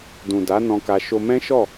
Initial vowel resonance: nasal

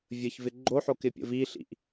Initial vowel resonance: oral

